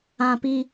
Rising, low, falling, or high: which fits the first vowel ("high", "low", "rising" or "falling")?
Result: high